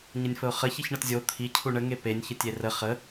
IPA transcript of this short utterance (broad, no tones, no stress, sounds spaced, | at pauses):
ɲ ə nʲ f ə ʊ̯ χ ə ç i ç ɳ ɤ t zʲ o t̪ʰ i cʰ u ɳ ə ŋ e p e nʲ ç ə tʲ e r ə χ ə